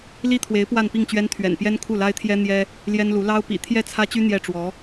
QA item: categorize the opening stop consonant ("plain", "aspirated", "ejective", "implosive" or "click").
aspirated